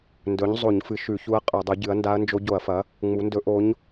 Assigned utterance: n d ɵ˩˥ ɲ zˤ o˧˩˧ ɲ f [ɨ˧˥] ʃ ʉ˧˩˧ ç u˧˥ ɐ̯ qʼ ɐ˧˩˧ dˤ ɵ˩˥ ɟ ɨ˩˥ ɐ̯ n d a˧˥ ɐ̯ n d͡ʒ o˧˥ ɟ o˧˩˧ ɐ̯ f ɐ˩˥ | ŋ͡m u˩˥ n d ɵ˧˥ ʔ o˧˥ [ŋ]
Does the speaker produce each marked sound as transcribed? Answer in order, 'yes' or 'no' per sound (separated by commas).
no, no